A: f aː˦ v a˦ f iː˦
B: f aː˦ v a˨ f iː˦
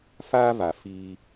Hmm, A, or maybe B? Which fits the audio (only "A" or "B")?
B